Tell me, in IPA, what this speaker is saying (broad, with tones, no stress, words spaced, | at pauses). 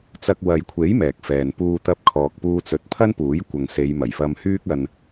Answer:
t͡sɐ˧k̚ wɐ˨jkʷʰe˨˥j mɛː˨k̚fɛː˨n puː˧ t̪ɐ˧p̚kʰɔː˨k̚puː˧t͡sɵ˨˥t̚ pʰɐ˥npuː˨˥j kʷɐ˨ŋse˨˧j mɐ˨˩jfɐ˧mhyː˥k̚ɐ˧n